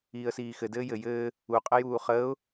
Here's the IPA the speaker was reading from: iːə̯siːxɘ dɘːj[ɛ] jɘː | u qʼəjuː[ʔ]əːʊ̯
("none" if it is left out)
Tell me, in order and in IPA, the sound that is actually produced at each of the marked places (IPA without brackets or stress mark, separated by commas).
ɘ, χ